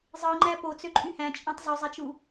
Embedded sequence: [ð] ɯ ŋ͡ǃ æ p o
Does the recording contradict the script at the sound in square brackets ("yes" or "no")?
yes